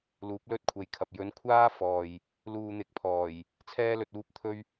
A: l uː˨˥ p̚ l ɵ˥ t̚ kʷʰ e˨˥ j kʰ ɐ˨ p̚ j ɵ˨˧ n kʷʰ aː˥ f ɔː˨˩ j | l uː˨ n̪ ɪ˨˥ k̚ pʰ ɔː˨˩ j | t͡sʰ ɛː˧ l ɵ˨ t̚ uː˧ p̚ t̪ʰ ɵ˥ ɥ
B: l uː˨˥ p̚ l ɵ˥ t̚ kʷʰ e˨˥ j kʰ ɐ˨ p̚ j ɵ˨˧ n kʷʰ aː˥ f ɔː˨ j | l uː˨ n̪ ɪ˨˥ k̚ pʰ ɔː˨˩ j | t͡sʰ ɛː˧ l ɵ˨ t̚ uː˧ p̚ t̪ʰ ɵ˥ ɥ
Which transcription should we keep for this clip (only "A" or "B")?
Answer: B